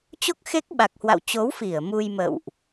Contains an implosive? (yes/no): yes